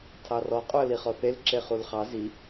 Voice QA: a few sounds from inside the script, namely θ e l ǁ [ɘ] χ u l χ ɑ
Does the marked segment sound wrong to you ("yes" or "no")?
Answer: yes